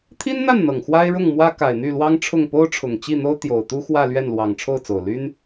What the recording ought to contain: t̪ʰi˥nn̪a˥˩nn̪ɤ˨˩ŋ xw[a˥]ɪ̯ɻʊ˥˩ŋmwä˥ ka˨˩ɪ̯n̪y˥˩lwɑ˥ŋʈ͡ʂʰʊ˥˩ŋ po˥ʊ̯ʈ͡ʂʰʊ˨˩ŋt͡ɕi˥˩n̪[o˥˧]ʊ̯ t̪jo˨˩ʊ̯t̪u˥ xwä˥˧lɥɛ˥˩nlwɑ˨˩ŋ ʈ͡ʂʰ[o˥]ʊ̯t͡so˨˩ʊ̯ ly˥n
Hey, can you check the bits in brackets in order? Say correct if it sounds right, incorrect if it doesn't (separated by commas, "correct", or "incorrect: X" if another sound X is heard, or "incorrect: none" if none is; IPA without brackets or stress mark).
correct, incorrect: o˥, incorrect: o˥˩